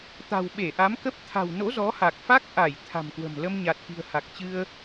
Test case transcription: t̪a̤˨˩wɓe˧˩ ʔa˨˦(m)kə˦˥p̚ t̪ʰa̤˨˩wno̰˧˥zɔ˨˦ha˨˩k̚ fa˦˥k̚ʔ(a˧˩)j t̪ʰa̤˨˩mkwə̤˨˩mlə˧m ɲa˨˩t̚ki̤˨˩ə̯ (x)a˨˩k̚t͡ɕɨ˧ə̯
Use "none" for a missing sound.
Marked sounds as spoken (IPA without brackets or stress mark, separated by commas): m, a˧˩, h